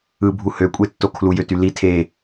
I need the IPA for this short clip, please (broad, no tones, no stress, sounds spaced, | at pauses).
ɯ bʱ u h ø kʷʼ e tː o kʰ l u j ø t y l i tʰ e